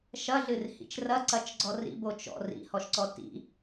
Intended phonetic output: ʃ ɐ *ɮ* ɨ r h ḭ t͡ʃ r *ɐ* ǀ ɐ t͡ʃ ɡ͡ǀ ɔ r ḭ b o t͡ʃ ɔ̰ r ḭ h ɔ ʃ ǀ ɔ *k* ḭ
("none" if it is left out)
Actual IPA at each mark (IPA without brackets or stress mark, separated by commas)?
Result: ɮ, ɐ, t